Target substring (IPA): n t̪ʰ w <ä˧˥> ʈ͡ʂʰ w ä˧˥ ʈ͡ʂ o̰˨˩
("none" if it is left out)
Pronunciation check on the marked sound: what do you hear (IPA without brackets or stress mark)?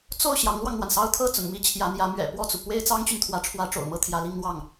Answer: ä˧˥